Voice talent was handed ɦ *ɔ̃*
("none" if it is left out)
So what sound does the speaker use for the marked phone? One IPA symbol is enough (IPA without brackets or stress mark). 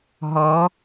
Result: ɔ